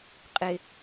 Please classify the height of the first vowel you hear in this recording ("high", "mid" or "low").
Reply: high